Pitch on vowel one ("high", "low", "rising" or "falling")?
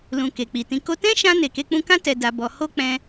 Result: low